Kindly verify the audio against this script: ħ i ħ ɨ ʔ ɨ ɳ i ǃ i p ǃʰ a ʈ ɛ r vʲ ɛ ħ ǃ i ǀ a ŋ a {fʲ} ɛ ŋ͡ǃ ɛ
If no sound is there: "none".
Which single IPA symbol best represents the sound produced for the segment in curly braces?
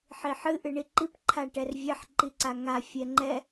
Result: fʲ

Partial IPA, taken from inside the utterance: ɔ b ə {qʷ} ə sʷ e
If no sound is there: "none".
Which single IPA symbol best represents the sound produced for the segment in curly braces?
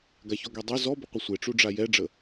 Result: qʷ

